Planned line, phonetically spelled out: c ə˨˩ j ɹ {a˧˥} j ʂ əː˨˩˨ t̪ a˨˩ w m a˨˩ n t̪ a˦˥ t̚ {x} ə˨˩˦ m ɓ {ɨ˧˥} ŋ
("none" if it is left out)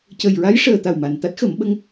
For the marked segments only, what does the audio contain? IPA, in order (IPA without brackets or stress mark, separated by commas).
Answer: a˧˥, x, ə˧˥